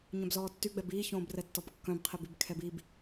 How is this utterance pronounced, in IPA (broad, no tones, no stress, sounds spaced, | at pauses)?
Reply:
ɲ œ̃ b z ɔː tː y ɡ͡b ɛ b iː ç õː b r ɛ tː ɔ b kː œ̃ b qʰ i b y b kʰ ɛ b i b